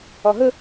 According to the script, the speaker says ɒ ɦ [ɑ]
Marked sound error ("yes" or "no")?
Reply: yes